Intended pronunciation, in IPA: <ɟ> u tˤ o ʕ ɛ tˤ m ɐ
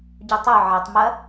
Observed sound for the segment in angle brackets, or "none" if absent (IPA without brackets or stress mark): ɟ